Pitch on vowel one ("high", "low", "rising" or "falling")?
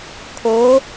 rising